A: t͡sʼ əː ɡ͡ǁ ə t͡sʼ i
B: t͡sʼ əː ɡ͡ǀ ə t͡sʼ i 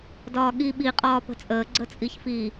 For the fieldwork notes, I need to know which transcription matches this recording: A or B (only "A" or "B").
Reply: B